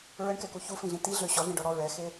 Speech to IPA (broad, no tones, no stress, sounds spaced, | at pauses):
ɹ ə ɳ k ɛ k u ç u f ĩ ɮ ĩ t i ɮ ø ɕ ɔ ɮ ĩ ɖ ɔ ɽ ɔ ɹ ɛ x e